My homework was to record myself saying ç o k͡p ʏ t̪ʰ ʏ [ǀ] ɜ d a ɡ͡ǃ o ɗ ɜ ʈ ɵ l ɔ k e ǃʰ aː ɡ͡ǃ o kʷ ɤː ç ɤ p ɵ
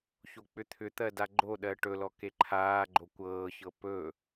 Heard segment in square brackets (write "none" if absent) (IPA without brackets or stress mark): t̪